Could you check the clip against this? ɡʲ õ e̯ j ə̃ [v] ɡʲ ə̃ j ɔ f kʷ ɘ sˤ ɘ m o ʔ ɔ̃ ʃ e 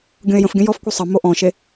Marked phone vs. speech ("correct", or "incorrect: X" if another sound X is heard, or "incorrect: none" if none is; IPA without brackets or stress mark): incorrect: f